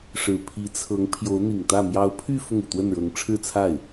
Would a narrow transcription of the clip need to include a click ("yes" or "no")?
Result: no